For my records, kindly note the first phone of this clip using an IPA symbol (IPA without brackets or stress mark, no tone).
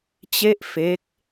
t͡ɕ